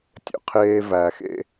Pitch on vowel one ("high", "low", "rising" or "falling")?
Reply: low